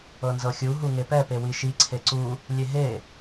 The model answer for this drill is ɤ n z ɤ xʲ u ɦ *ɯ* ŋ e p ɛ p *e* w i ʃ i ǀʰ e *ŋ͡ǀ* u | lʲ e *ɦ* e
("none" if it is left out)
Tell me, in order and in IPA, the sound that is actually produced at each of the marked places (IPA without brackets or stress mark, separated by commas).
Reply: u, e, ǀ, ɦ